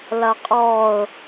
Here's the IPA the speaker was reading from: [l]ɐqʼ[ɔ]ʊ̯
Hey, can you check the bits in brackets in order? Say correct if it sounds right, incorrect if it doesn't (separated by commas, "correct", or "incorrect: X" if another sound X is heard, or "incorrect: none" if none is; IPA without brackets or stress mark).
correct, correct